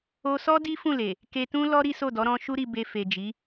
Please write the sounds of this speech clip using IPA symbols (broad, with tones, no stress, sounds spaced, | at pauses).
o˧ s ɔ˦ d i˦ f ũ˦˨ l e˨ | k e˧ t ũ˦ l ɔ˦ ɾ i˦ s o˦˨ d ɔ˨˦ ɾ ɔ̃˦ ʃ u˦ ɾ i˧ b e˧ f e˨ d͡ʒ i˨˦